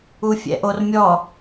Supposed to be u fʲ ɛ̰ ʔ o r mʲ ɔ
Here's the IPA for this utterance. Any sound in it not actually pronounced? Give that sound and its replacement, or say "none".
none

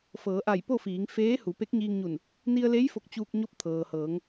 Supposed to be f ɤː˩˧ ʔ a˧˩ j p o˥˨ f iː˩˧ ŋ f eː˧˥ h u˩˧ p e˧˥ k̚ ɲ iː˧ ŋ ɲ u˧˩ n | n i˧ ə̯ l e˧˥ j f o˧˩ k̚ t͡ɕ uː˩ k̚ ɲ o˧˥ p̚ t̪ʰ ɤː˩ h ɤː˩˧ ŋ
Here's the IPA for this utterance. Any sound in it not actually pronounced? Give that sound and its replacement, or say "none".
uː˩ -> uː˧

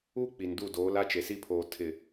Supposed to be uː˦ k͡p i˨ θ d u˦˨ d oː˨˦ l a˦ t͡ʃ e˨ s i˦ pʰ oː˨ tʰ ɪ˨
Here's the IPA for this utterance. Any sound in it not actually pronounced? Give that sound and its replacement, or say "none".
θ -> n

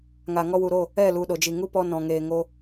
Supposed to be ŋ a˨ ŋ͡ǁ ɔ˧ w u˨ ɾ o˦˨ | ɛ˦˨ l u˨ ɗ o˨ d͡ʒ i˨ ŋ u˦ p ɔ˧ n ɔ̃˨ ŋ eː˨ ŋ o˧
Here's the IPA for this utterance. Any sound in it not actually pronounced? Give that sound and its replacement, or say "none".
ŋ͡ǁ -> ŋ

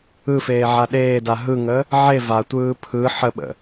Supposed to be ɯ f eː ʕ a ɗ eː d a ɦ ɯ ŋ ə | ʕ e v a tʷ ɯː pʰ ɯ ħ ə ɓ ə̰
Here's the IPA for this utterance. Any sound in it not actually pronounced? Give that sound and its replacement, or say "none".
none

